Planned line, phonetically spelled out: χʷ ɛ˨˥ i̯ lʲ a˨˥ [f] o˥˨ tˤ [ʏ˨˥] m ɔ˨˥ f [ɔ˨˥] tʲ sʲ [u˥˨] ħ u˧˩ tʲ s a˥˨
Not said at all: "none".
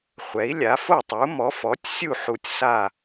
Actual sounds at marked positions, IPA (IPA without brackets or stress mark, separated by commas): f, u˨˥, ɔ˨˥, u˥˨